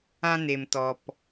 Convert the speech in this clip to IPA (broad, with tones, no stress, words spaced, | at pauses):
ã˦ne˨m tɔ˨p